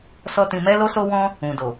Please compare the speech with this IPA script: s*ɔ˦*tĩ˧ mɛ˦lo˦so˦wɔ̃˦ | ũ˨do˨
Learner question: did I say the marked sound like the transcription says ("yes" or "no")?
yes